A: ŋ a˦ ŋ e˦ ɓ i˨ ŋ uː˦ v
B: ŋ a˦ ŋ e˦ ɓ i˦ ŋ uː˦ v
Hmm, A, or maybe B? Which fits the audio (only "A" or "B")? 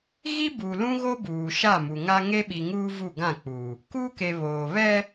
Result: A